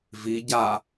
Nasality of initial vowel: oral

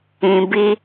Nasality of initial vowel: nasal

